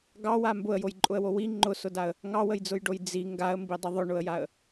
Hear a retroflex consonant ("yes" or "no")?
yes